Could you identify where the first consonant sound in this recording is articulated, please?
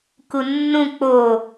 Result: velar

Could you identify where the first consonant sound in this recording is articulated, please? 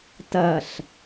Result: alveolar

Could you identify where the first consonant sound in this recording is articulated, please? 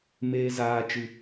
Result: labial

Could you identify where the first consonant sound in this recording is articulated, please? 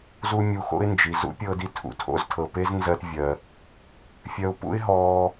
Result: alveolar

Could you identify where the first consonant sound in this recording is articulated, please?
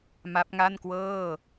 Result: labial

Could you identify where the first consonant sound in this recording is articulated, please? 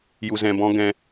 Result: palatal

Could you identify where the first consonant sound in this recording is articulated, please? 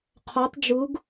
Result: uvular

